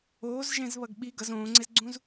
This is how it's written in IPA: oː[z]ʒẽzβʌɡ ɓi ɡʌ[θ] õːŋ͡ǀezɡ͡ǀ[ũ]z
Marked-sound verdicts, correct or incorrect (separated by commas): correct, incorrect, correct